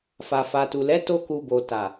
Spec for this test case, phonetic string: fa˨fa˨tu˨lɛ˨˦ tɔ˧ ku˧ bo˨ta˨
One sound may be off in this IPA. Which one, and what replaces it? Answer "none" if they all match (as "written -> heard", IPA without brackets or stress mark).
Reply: ɔ˧ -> o˧